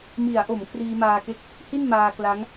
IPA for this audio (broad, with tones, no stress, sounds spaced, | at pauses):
m i˩˦ a̯ ʔ o˩˦ m kʰ r iː˧ m aː˧ k e˥˩ k̚ | h i˥˩ n m aː˧ k l a˦˥ ŋ